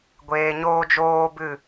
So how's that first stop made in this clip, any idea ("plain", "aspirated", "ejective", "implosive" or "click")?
plain